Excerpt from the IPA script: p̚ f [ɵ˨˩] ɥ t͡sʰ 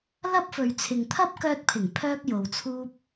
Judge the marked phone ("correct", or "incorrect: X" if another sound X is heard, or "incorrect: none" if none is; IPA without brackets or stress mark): incorrect: ɵ˨